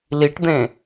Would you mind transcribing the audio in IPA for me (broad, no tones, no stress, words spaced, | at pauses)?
liʈd̪ẽ